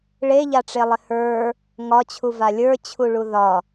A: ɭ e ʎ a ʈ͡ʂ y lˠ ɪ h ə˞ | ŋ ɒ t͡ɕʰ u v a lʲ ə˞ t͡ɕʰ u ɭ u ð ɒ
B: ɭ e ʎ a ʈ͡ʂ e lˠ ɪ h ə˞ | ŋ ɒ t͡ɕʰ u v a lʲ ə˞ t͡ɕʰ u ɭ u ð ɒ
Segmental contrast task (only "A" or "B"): B